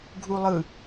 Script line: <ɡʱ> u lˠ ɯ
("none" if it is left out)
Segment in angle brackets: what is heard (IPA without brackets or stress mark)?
ɡʱ